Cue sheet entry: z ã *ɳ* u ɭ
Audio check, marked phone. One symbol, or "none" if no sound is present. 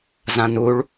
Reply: n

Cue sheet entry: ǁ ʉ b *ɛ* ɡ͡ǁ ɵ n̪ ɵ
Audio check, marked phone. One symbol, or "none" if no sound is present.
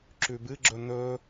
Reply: ɨ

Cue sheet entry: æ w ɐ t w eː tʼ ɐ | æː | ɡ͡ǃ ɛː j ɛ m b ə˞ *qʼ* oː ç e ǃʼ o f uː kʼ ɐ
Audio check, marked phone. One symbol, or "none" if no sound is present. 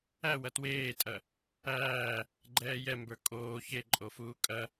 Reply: kʼ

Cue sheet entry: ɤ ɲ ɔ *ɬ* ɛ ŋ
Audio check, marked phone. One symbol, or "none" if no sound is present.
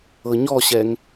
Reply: ɕ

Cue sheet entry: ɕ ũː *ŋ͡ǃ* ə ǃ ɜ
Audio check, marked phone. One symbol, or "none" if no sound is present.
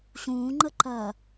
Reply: ŋ͡ǃ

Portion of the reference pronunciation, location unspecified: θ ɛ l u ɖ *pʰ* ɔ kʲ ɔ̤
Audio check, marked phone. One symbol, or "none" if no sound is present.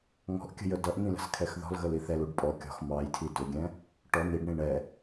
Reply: pʼ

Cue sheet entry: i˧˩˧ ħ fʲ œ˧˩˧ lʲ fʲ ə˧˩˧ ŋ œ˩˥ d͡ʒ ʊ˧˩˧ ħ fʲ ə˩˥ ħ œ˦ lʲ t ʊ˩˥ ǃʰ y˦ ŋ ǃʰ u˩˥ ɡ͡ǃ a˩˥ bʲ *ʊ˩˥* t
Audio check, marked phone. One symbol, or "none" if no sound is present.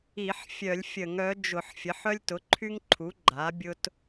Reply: ʊ˦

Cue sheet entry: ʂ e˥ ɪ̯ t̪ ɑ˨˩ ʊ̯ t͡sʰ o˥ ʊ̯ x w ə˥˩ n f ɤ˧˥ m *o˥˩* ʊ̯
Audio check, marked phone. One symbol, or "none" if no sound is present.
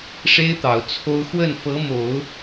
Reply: o˨˩˦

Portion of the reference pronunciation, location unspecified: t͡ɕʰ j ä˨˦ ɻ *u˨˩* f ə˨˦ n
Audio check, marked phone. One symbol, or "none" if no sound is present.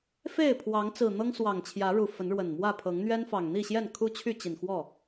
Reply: u˨˩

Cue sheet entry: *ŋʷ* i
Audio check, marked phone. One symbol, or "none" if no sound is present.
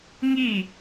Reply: ŋ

